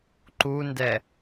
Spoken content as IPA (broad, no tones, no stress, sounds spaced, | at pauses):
ǃ u n d ɛ